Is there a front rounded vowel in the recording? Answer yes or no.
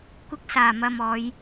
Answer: no